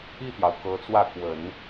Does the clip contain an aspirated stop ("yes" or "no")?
no